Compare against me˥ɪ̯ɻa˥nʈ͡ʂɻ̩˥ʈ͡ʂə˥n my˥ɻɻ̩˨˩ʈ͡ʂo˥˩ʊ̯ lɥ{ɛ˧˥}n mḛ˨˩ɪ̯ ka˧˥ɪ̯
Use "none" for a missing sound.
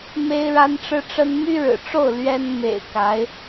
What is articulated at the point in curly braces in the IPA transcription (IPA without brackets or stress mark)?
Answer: ɛ˥